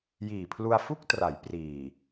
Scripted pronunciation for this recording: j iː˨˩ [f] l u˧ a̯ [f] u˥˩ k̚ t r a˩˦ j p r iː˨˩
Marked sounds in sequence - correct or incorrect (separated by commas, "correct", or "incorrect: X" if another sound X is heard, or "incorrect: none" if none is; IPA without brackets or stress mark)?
incorrect: pʰ, correct